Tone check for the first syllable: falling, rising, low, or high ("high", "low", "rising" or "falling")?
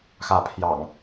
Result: rising